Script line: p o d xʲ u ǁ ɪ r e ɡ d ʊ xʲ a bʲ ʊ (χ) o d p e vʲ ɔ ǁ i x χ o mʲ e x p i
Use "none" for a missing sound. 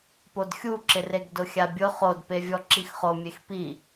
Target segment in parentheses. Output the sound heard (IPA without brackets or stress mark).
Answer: χ